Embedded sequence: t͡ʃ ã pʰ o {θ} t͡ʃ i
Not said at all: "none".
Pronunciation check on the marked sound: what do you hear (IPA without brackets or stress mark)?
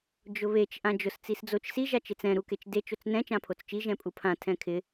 t͡s